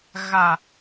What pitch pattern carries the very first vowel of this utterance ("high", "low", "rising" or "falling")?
low